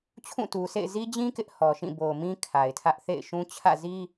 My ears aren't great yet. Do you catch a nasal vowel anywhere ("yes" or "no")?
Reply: yes